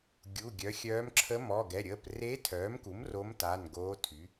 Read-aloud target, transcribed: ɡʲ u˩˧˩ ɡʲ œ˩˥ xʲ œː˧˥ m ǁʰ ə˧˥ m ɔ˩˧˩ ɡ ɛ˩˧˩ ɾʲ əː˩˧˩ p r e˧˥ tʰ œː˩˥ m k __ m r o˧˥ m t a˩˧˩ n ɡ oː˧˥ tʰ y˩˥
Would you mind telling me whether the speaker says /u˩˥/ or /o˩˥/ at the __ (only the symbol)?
u˩˥